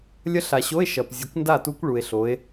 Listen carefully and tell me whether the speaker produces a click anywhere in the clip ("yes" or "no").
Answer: no